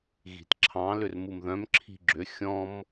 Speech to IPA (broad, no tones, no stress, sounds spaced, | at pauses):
ɣ i̤ t ǁʰ ɑ̃ l ʏ r m u m ð œ̃ m ǁʰ i̤ ɡ͡ǁ ʏ xʲ ɔ̃ m